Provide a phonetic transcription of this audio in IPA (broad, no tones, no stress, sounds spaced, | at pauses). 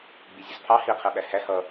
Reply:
ɡ͡b i zʲ ʌ z pʰ ɑ h i qʰ ɛ ɓ æ h æ h ʌ